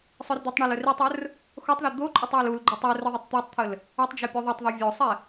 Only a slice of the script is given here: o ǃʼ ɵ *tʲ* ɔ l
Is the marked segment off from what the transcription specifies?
yes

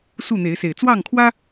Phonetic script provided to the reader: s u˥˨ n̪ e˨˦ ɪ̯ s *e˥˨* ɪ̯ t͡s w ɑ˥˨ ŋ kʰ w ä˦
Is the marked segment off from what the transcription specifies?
yes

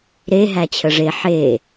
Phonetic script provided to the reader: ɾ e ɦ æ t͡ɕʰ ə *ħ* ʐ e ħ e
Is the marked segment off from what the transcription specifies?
yes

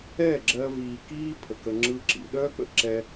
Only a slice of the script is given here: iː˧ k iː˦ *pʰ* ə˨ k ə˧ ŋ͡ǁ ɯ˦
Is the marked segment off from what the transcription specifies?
no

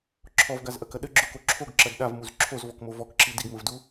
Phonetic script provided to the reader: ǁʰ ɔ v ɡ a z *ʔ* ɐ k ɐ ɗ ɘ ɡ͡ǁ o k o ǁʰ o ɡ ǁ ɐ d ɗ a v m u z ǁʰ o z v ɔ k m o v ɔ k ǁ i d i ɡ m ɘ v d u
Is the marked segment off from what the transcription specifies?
no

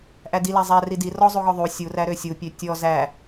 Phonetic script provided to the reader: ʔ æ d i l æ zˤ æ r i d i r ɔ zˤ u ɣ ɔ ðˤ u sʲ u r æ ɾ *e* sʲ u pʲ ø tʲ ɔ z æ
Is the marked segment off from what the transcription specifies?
yes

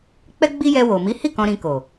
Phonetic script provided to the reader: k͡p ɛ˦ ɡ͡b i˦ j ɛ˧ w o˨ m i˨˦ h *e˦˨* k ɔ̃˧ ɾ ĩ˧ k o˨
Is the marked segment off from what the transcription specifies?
yes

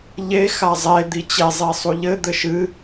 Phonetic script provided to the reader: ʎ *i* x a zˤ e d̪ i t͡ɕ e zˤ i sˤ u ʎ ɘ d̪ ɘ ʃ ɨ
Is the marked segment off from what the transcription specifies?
yes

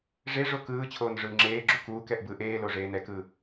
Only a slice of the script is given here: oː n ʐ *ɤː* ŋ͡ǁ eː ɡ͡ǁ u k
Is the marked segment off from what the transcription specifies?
yes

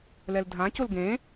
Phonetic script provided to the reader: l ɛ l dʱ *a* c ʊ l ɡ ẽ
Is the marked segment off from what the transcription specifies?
yes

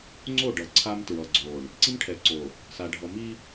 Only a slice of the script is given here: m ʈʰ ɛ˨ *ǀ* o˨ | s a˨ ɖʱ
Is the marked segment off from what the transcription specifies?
no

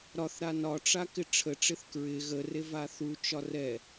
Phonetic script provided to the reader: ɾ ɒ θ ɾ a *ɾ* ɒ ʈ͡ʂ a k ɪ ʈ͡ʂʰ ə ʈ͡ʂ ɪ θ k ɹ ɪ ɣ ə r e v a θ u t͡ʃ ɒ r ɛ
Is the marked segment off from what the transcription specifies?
yes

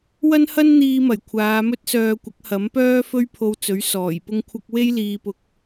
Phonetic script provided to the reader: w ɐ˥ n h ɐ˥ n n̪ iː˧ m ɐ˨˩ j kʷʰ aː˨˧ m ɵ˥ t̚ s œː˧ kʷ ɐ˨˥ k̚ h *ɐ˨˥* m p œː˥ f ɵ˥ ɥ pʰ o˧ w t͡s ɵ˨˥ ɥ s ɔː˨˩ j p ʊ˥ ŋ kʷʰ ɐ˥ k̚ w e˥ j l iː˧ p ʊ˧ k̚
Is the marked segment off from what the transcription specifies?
no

